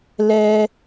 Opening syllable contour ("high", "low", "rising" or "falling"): high